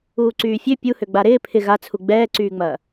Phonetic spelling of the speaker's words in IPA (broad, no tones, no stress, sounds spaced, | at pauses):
uː ǀ yː fʲ ø pʲ u h ø ɡ͡b a ɾ ɪː pʰ ɪ ɣ a t͡sʰ u ɡ͡b ɛː ǀ yː ŋ͡m ɐː